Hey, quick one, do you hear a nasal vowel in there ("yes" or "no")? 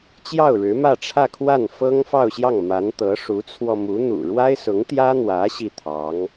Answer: no